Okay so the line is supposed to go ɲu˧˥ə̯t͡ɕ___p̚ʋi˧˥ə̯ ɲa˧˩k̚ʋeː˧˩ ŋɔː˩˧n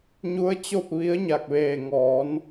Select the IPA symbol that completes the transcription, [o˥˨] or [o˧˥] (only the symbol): o˥˨